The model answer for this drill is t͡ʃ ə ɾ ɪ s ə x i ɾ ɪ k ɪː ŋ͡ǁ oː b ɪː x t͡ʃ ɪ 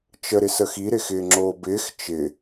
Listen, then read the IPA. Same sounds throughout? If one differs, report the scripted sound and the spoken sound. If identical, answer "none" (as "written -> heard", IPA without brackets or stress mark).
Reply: k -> x